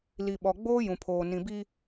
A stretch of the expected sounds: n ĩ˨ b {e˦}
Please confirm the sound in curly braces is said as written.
no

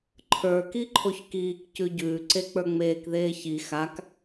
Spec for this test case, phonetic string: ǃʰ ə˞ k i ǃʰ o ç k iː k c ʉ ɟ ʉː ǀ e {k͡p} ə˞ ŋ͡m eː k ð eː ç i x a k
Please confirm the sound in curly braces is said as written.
yes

